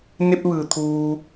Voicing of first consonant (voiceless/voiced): voiced